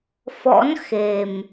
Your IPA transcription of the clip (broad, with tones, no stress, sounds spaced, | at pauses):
f ɔ̰˧˥ n x e˨˩ m